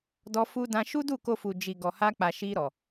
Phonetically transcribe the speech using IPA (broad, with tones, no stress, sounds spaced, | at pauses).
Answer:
d ɔ˧ f u˧ d ã˧ ʃ u˦ d u˦˨ k o˧ f u˨ d͡ʒ i˨ ɡ ɔ˨ h a˧ k͡p a˨ ʃ i˧ ɾ ɔ˨